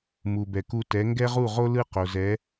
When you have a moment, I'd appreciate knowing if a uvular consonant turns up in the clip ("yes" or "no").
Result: yes